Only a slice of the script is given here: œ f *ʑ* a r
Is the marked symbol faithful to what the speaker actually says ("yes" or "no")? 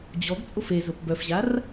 yes